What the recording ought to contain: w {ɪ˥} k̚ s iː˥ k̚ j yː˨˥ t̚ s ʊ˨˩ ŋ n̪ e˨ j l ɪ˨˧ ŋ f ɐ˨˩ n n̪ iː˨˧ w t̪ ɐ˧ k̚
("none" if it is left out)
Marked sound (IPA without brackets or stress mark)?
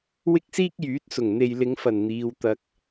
ɪ˥